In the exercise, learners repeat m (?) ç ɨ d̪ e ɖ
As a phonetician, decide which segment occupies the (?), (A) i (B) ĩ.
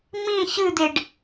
B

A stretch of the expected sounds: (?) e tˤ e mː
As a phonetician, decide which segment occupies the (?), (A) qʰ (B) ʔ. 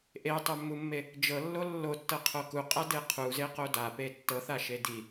B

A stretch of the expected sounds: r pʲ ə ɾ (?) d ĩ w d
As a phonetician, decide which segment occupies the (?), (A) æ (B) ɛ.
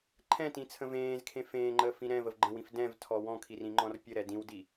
B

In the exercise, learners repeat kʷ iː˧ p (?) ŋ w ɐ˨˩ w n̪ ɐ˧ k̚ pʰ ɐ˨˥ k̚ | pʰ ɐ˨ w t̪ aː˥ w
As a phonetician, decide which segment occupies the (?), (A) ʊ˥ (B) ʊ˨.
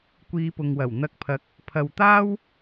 B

